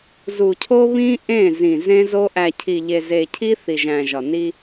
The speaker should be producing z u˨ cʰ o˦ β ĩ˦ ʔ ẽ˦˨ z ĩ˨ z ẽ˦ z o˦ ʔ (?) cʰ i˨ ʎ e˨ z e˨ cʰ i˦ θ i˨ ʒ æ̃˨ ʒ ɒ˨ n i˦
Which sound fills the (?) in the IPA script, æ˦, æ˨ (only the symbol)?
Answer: æ˨